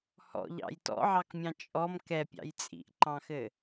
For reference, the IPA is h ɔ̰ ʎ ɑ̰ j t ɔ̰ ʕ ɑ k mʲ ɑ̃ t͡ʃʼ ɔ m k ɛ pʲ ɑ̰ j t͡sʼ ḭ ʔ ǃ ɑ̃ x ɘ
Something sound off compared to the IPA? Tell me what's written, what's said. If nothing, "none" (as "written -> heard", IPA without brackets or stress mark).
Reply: none